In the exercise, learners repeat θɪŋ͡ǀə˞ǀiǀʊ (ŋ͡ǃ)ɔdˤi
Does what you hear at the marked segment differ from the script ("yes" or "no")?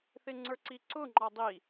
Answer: no